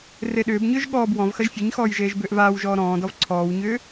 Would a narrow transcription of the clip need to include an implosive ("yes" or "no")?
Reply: yes